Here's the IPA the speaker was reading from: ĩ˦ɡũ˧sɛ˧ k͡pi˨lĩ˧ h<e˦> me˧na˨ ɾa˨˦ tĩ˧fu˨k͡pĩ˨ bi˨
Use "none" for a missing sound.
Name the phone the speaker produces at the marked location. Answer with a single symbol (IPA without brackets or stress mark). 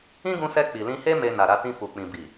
e˦